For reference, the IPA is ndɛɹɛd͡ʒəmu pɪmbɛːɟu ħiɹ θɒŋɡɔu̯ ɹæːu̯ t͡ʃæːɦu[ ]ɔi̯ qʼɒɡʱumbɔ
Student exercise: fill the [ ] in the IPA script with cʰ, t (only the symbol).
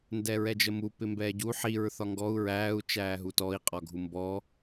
t